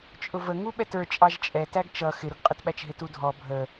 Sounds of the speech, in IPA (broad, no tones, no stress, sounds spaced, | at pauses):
t͡ʃʼ ʊ v ə ŋ u ɓ ɛ t ə˞ t͡ʃʼ ɑ ʒ t͡ʃʼ ɛ t æ ɡ t͡ʃ ʌ x ɪ ɾ ʊ ɡ qʼ ɪ t ɓ æ t͡ʃ ɦ ɪ t u dʱ ɔ bʱ ə